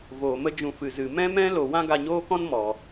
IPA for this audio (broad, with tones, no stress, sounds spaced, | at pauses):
v oː˨ m ə˦ d͡ʒ ũ˧ f ɨ˨ z ɨ˨ m ɛ̃˦ m ɛ̃˦ l o˨ w ã˦ ɡ a˧ ɲ oː˦ k ɔ̃˦ n m ɔ˨